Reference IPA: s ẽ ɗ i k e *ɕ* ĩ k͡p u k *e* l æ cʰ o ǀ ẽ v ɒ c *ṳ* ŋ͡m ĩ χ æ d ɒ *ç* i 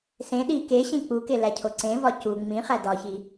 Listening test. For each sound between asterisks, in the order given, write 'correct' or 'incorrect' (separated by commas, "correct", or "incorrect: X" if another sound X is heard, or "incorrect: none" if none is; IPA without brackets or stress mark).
correct, correct, incorrect: u, correct